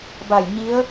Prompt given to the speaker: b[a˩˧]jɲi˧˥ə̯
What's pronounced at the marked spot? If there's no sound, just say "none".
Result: a˧˩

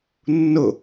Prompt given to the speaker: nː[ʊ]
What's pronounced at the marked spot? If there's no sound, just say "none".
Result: ʊ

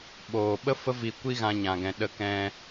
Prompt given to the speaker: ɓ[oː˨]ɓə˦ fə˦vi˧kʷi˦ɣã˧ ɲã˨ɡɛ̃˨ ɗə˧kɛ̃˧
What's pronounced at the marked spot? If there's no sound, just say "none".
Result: oː˨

